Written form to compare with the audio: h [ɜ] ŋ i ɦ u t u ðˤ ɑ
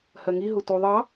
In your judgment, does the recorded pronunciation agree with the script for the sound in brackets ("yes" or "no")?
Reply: yes